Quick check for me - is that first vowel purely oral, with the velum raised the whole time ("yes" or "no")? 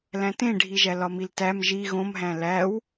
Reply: no